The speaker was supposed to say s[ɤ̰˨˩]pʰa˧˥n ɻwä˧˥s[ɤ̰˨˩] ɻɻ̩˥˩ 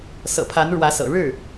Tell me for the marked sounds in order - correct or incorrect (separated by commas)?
correct, correct